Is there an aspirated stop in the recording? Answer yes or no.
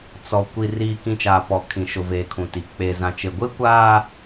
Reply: yes